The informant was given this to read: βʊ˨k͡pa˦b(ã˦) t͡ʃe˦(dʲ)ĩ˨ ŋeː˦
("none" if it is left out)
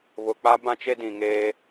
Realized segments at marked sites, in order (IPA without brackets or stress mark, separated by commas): ã˦, d